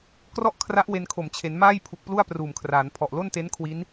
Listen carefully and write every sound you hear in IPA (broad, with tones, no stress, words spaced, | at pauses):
krɔ˥˩ʔkʰra˦˥ʔ we˧nkʰo˨˩m t͡ɕʰe˩˦n maː˥˩jpʰu˨˩k̚plu˥˩a̯ pruː˨˩mkʰraː˩˦n pʰɔ˨˩ʔlo˥˩nte˦˥n kʰwi˦˥n